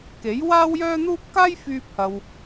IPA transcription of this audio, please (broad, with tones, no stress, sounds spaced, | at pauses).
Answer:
k e˨˥ j w aː˥ w j œː˥ n̪ uː˥ p̚ k aː˥ j f yː˧ p̚ h ɐ˨ w